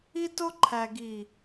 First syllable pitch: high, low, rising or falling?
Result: high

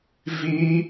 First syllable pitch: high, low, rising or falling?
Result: high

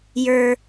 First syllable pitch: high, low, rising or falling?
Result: low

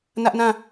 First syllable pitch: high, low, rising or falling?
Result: high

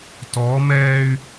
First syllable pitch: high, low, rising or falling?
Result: rising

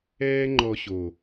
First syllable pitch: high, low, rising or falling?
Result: high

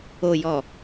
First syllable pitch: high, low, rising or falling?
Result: low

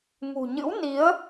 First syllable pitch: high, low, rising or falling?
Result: low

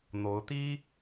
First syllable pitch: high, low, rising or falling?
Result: rising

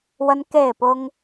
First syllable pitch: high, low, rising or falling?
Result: high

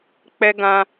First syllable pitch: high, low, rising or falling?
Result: low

